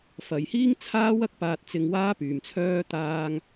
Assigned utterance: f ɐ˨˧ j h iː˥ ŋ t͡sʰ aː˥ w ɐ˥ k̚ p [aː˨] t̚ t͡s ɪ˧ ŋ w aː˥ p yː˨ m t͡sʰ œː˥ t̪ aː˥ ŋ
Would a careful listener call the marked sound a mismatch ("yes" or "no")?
yes